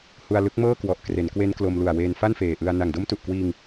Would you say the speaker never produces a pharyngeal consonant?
yes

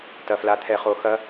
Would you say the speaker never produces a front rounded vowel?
yes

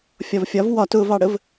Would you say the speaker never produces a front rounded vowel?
yes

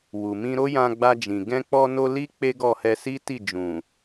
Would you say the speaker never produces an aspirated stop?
yes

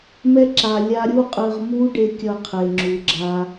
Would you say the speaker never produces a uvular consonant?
no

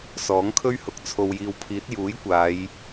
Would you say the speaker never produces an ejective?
yes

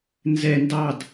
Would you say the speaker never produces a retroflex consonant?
yes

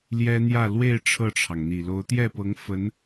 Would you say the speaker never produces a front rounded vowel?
yes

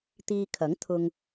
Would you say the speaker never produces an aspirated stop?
no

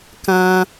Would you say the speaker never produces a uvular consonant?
yes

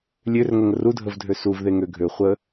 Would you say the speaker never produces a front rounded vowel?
no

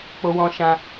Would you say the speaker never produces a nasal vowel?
no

